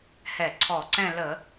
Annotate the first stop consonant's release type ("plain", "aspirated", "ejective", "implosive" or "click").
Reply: click